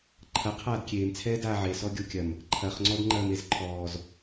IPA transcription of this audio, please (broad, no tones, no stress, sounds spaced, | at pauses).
ǃʰ ɐ qʰ aː d kʲ eː m t͡sʰ ɛː d aː ʕ e s ɔ ɡʲ o kʲ ɐ m | ǃʰ ɐ χ ŋ͡ǀ ɔ d ŋ͡ǃ ɐː m e z ǃʰ ɔː z